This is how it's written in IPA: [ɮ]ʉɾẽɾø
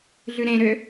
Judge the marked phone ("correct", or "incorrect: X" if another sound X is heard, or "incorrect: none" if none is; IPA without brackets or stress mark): correct